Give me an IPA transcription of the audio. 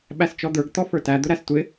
ɓ æ s t͡ʃ ɔ d̪ ə˞ ɡ t̪ ɔ f ə˞ t æ d̪ ʊ ɾ æ s tʷ ɪ

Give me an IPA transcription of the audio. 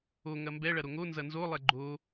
o ŋ ɐ m b ɛ ɭ ɐ ɾ o ŋ o n z ɐ n z o lˠ ɛ ɡ͡ǃ o

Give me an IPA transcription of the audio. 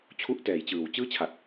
t͡ɕʰ u˦˥ ʔ t ɛː˨˩ j t͡ɕ ɯː˨˩ w t͡ɕ ɯː˥˩ t͡ɕʰ a˨˩ t̚

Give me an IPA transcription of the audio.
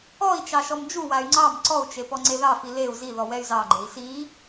ɔ i̯ t͡ʃ ɑ ʃ ɔ m d͡ʒ u w a y̯ ŋ͡ǀ ɑ m ǀ ɔ u̯ t͡ʃ e p ɔ ŋ͡ǀ e ð ɑ f i l e u̯ z i ð ɔ w ɛ y̯ z ɑ ɡ͡ǃ e i̯ s i

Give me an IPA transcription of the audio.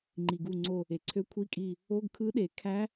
ŋ͡ǃ i˩ ɡ u˧˩ ŋ͡ǀ o˧˩ | e˩ ǀʰ ø˧˥ kʷʰ i˧˥˧ kʼ i˧˩ | o˧˥˧ ɡ kʰ ɯ˧˥ ɗ e˩ kʰ æ˧˥

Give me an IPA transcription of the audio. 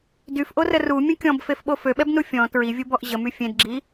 d y f ʔ o r ə r u mʲ ə̃ kʲ ɔ̃ b f e f ɓ o f ø ɓ ɛ b n u fʲ ɔ̃ t ɹ i vʲ u b ɔ ʔ ʑ ə m y fʲ ẽ d ɡ͡ǁ i

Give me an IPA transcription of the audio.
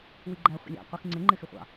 w i ɡ͡ǃ æ χʷ ə̰ lʲ ɑ̰ qʷ i x ŋ͡ǀ ɪ ŋ͡ǃ ɪ x ɪ χʷ ɑ̰

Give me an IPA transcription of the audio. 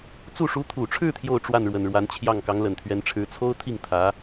t͡s u˥˩ ʂ u˧˥ t̪ʰ u˨˩ ʈ͡ʂʰ ɻ̩˥˧ t̪ʰ j o˥˧ ʊ̯ ʈ͡ʂ w a˥˩ n ɻ w ə˨˩ n ɻ w a˧˥ n t͡ɕʰ j ɑ˥˩ ŋ k ɑ˧˥ ŋ l ə˨˩ n t̪ʰ ɥ ɛ˧˥ n ʈ͡ʂʰ ɻ̩˧˥ t͡sʰ o˥ ʊ̯ t̪ʰ i˥˩ ŋ t̪ʰ ä˧˥

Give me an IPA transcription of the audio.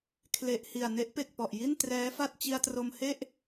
kʰ l e˨˩ ʔ h i˨˩ a̯ n e˦˥ ʔ p e˨˩ k̚ p ɔ˨˩ ʔ j i˥˩ n t r ɛː˦˥ f a˥˩ t̚ t͡ɕ i˧ a̯ t r o˧ m h e˥˩ ʔ

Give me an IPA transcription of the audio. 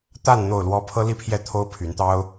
t̪ a˥˨ n n̪ o˥˨ ʊ̯ l w ɔ˦ pʰ ɤ˦ l i˥˨ pʰ j ɛ˥˨ t̪ʰ o˦ ʊ̯ pʰ y˨˦ n t̪ ɑ˦ ʊ̯

